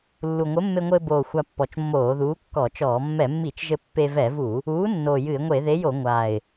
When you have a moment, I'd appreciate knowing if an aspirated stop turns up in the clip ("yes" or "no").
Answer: no